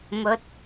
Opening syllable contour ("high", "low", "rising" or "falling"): rising